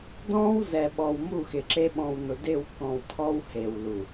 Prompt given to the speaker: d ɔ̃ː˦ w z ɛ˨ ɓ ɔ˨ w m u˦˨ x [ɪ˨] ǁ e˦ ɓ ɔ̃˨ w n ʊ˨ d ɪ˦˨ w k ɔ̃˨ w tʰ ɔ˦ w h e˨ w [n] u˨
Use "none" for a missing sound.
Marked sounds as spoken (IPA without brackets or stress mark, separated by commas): ɪ˨, l